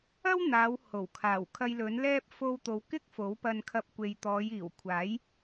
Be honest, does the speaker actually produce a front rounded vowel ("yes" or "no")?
no